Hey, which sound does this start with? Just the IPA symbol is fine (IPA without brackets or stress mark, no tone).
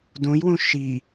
d